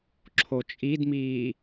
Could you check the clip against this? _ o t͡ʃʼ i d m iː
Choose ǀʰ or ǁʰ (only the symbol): ǁʰ